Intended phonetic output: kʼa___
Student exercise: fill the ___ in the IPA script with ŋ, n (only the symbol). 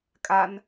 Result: n